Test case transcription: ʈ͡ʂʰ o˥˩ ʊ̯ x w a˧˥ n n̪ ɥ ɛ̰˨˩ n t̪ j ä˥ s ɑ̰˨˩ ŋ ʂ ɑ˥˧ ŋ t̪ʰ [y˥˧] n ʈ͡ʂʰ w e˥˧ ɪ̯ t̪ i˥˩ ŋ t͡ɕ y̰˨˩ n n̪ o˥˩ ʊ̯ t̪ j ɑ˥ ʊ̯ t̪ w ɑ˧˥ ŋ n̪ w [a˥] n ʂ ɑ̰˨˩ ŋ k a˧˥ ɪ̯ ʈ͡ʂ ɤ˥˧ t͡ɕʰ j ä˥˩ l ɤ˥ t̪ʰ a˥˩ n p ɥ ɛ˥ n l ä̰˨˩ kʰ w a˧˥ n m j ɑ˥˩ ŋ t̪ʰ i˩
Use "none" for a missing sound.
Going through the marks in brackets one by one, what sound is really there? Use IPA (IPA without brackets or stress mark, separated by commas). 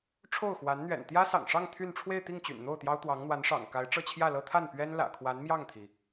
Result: y˥˧, a˧˥